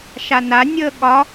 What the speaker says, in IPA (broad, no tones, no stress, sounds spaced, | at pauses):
ʃ a n a nʲ əː ɠ ɒ